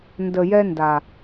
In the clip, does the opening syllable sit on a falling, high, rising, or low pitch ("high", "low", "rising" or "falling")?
low